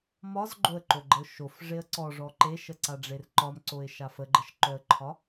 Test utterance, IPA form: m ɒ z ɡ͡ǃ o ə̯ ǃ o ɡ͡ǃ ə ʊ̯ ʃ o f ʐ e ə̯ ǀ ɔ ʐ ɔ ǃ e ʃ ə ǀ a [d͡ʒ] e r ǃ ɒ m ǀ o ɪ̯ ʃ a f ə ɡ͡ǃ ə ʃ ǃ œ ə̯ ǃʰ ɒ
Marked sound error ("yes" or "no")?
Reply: yes